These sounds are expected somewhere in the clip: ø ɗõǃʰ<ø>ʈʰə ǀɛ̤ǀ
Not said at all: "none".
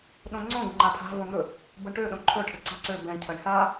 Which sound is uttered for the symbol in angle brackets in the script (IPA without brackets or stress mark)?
ɵ